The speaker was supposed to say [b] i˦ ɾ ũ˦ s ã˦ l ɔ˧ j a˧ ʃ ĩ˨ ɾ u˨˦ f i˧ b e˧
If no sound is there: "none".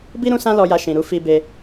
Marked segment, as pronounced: b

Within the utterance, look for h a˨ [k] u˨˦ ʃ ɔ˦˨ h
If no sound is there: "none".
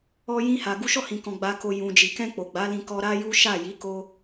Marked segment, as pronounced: ɡ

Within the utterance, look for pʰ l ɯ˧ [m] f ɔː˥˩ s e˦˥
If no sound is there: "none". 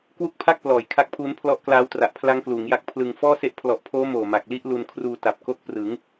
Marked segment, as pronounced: ŋ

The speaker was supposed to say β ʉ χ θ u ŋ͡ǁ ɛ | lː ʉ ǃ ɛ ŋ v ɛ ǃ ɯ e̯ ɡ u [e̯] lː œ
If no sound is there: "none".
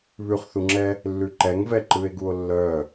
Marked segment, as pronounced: o̯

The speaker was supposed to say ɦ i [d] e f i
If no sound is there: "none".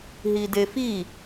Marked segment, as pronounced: d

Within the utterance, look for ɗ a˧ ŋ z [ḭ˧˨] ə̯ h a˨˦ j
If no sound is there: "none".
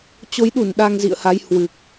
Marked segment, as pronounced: ḭ˧˨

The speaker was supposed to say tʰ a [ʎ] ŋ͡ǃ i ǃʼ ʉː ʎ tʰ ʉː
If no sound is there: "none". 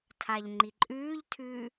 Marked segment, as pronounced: ʎ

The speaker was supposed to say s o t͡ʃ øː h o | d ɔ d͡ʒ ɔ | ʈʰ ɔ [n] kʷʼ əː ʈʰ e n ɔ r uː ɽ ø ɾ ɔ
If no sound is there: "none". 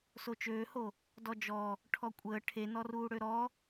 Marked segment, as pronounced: none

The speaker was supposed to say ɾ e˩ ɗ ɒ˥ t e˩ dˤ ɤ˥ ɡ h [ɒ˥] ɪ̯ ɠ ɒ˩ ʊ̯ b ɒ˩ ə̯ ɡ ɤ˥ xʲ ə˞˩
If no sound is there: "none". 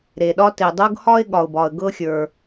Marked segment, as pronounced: ɒ˥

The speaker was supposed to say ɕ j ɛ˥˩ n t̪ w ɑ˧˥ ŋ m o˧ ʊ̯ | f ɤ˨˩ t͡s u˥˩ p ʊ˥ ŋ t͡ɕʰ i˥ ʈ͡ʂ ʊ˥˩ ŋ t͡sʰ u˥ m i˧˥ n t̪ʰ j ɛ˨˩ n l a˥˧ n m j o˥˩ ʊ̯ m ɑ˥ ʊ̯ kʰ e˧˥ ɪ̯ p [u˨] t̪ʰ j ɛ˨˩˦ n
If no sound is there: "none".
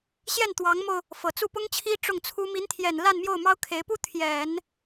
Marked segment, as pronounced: u˥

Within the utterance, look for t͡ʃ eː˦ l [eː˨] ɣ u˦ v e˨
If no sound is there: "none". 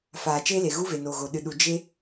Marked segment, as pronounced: e˨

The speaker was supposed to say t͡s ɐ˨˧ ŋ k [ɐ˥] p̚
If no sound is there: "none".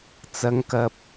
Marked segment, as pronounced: ɐ˨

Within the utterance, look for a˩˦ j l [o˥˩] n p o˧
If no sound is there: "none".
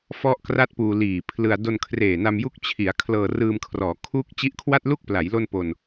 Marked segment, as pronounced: o˥˩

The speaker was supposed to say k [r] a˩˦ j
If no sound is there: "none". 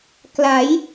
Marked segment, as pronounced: l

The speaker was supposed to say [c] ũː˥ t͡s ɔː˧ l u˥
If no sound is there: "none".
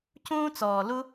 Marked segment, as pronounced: c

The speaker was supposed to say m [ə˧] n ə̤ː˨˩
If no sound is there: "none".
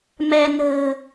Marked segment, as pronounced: ɛ˧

